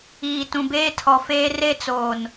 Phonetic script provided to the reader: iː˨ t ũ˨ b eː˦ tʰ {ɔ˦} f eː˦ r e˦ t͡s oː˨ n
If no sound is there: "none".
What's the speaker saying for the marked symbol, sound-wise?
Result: ɔ˨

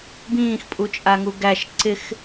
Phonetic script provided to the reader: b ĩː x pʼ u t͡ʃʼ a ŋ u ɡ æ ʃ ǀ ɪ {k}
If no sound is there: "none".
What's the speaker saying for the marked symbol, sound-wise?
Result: x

